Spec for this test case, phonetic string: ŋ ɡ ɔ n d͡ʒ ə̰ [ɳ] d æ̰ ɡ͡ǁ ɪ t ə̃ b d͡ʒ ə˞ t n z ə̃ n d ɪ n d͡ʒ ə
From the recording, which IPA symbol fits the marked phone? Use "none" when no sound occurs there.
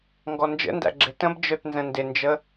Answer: n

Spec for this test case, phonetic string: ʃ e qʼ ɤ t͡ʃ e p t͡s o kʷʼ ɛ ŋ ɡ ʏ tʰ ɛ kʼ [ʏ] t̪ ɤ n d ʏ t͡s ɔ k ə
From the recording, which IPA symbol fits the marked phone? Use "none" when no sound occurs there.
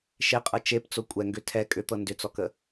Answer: ʏ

